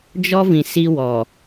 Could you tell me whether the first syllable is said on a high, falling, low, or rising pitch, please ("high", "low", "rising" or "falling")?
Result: high